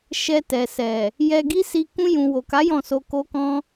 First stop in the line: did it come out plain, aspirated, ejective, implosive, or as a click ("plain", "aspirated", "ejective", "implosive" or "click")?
plain